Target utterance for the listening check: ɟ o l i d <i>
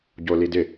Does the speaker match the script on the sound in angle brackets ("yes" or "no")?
no